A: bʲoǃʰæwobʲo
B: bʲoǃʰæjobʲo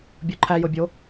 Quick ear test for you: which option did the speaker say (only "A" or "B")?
B